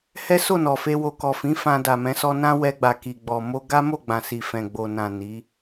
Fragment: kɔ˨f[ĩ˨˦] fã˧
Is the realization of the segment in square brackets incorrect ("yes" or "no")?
no